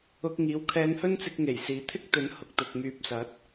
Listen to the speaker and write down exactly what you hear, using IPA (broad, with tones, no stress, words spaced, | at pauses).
ʊ˧k̚ ŋiː˨˥wkʰɛː˧ŋhɵ˥nt͡sɪ˧k̚ ŋe˨˩jsiː˨t̪ʰɪ˥k̚t̪ɵ˨˥n hʊ˨k̚t̪ʊ˨k̚myː˨˥p̚sɐ˨˥t̚